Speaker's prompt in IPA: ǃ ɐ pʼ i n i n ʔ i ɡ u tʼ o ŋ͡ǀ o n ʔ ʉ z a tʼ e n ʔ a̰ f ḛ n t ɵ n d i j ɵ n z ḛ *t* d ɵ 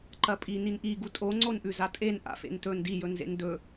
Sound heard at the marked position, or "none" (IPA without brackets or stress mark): n